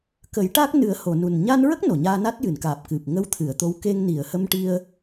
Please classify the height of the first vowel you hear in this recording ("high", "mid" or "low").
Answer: mid